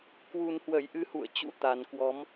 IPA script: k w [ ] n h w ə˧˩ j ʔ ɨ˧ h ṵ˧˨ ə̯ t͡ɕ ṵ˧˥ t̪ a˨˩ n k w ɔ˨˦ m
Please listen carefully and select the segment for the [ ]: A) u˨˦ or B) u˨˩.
B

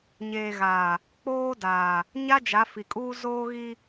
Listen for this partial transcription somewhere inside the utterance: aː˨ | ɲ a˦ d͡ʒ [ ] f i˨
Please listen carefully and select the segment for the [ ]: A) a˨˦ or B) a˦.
A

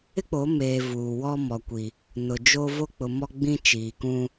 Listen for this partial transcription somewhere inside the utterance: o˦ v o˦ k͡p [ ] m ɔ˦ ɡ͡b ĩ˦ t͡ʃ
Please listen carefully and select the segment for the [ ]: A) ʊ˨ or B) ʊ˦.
A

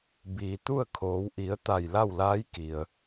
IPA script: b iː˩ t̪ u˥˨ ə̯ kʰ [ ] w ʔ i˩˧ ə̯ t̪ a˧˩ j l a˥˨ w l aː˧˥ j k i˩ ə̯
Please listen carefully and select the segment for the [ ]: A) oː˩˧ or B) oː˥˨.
A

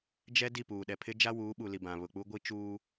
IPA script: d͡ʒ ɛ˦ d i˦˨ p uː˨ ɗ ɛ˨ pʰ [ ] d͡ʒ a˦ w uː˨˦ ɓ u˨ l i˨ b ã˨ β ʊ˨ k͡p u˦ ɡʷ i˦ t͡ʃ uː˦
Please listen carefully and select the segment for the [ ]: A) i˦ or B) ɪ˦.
B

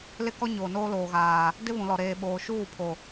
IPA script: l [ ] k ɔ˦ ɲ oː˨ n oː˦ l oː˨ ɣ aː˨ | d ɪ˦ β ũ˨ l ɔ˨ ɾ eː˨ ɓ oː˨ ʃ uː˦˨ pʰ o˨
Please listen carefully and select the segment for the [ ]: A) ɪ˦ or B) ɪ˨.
A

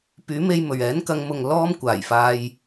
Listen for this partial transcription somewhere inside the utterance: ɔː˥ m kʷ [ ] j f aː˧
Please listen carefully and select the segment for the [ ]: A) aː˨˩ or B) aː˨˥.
A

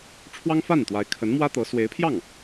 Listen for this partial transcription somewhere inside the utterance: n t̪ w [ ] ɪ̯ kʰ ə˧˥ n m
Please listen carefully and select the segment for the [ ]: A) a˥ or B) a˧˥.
B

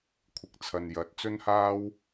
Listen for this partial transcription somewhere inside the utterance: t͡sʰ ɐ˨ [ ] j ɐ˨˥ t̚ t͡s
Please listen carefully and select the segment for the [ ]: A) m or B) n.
B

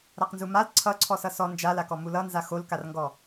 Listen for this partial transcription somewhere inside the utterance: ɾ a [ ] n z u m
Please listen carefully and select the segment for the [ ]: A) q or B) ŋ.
A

